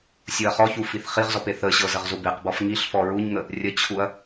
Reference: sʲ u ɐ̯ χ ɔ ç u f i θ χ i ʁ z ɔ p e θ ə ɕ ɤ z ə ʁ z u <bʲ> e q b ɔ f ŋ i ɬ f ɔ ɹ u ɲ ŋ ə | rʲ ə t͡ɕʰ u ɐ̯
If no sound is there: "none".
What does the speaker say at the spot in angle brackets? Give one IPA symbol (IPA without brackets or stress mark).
b